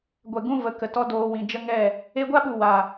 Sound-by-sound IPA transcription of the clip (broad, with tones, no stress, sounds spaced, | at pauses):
ɡʷ ɛ˨ ɡ ũ˧ v ə˨ k ə˨ t ɔ˧ d oː˨ w ĩ˨ d͡ʒ ə˦ ŋ ɛ˦˨ | e˧ ɡʷ a˦ ɓ u˨ w a˨